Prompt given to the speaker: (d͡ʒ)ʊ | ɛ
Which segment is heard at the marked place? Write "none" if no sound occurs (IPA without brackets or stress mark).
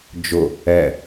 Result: d͡ʒ